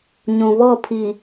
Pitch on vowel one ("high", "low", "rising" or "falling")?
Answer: low